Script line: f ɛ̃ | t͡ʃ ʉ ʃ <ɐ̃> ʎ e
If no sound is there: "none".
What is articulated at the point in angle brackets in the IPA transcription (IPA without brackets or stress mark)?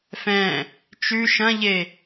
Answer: ɐ̃